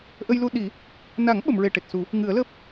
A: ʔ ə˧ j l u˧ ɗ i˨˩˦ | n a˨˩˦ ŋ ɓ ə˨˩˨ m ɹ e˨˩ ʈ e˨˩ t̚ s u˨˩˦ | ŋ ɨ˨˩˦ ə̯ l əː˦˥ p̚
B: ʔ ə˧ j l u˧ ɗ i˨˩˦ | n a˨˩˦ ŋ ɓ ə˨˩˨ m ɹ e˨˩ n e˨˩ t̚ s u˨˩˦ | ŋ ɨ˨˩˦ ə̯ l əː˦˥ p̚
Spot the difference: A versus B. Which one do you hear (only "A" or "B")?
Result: A